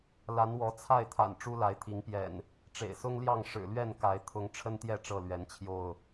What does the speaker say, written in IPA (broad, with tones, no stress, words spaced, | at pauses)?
la˨˦nwɔ˨˦t͡sʰa˥˨ɪ̯t̪ʰa̰˨˩n ʈ͡ʂu˦la˨˦ɪ̯ t̪ʰi˨˦ŋpjɛ̰˨˩n | ʈ͡ʂḛ˨˩ɪ̯sʊ˦ŋljɑ˥˨ŋ ʂɻ̩˨˩lɥɛ˥˨nka˨˦ɪ̯ t̪ʰʊ˨˦ŋʈ͡ʂʰə˦nt̪jɛ˥˨ ʈ͡ʂɤ˥˨lɥɛ˨˦nt͡ɕʰjo˥˨ʊ̯